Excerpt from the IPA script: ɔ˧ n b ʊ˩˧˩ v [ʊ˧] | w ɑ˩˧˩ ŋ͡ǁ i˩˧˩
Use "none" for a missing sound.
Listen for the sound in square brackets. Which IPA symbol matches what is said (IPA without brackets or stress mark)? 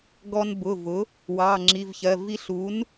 ʊ˩˥